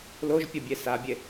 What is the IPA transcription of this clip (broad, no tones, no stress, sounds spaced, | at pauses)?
l o ʒ pʲ ʌ bʲ e s a bʲ e